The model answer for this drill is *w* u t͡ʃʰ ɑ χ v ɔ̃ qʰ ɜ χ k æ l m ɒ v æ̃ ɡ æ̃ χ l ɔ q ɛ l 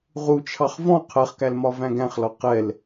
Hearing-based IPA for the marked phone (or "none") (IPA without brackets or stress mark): ʁ